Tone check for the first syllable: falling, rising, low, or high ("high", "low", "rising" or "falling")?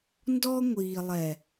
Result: high